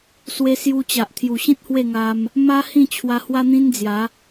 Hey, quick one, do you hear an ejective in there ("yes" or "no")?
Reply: no